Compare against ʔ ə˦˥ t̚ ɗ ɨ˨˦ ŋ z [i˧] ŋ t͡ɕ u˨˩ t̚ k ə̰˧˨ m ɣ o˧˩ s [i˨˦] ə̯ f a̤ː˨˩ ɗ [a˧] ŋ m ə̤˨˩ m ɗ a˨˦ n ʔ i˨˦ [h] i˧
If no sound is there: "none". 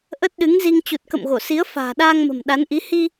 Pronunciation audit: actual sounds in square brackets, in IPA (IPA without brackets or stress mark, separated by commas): i˧, i˨˦, aː˧, h